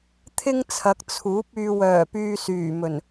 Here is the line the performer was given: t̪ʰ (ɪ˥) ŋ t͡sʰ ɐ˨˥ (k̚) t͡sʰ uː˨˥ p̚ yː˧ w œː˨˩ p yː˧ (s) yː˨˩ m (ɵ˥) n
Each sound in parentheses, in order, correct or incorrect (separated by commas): correct, correct, correct, incorrect